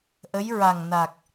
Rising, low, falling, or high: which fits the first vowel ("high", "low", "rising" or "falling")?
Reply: rising